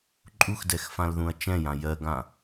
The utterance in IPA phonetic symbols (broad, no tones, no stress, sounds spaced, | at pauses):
ǃʼ u x d ɛ x f ã l ð ũ ɐ̯ t͡ʃ ɛ̃ j ã j ɜ ɡ ã